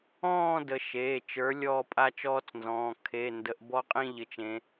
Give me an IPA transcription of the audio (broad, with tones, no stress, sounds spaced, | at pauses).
ɔ̃ː˥˧ d ə˨˦ ʃ eː˩˧˩ t͡ʃ ə˞˨˦ lʲ ɔː˥˧ pʼ a˥˧ t͡ʃ ɔː˦˥ t͡s n z ɔ̃ː˩˧˩ kʰ e˩˧˩ n d ə˨˦ ʔ b ɔ˦˥ qʼ ĩ˥˧ ʎ ɘ˨˦ t͡ʃ ẽ˨˦